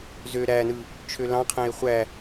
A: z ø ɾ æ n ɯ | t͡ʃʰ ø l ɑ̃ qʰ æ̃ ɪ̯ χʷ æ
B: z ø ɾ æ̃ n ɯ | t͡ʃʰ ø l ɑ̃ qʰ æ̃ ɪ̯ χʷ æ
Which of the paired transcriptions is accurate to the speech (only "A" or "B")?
A